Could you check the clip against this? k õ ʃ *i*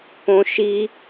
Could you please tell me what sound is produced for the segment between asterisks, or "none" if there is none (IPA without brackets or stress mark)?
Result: i